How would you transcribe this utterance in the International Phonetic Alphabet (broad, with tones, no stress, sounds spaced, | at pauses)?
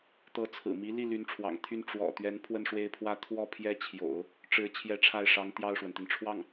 t̪ ɤ˧˥ t͡sʰ ɹ̩˨˩ m i˧˥ l i˥˩ l y˧˥ n ʈ͡ʂʰ w ɑ̰˨˩ ŋ t̪ʰ y˥˩ n ʈ͡ʂ w ɔ̰˨˩ t̪ ɥ ɛ˧˥ n pʰ w ə˥˧ n ʂ w e˥˧ ɪ̯ pʰ w ä˥˧ t̪ʰ w ɔ˥˩ pʰ j ɛ˥ t͡ɕʰ j o̰˨˩˦ ʊ̯ | ʈ͡ʂ ɻ̩˧˥ t͡ɕʰ j ɛ˥˧ ʈ͡ʂʰ a˥˩ ɪ̯ ʂ ɑ˧˥ ŋ t̪ j ɑ˥˩ ʊ̯ ʂ w ə˩ n t̪ i˩ n ʈ͡ʂʰ w ɑ˥˩ ŋ